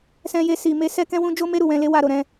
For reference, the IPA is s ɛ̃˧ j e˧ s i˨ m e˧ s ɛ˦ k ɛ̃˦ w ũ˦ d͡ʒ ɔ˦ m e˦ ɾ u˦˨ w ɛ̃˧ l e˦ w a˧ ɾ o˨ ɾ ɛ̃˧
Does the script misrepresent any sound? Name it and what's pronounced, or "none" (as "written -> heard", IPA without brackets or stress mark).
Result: ɔ˦ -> o˦